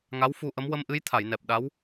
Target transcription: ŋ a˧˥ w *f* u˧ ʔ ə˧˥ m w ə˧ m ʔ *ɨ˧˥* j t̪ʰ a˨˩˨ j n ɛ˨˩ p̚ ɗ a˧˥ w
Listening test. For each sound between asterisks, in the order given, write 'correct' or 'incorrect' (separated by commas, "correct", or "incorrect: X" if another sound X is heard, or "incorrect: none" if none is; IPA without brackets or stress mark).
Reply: correct, correct